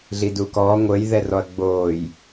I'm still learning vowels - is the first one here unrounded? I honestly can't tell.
yes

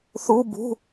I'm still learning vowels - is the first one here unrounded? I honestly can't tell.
no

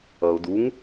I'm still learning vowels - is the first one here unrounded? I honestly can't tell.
yes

